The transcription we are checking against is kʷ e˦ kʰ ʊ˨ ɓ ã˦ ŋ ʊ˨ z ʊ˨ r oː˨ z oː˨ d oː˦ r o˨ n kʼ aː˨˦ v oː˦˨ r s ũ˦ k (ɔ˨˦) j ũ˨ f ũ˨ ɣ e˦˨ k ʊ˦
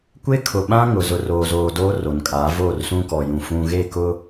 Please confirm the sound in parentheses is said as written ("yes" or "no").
no